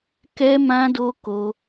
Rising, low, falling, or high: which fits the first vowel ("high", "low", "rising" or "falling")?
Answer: high